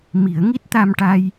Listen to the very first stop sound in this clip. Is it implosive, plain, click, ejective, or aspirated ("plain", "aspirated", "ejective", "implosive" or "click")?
plain